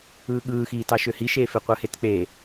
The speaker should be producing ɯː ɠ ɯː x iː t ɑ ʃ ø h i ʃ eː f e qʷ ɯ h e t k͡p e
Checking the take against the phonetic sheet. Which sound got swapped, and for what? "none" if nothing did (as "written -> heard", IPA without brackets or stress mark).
none